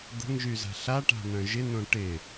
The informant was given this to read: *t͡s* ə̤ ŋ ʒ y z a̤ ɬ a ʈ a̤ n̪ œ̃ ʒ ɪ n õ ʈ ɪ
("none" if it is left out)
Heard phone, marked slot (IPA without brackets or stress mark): d̪